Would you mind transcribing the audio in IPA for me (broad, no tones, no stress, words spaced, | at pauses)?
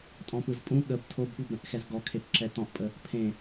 tʼɔ̃pɯzpʼũ ɠəb tʰobɠɯbɾə̃ʔ xɛzɡɔkʰepǁɛ tɔ̃ʔpʼə | pʰẽ